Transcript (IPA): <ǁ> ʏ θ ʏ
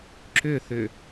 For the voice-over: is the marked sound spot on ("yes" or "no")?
yes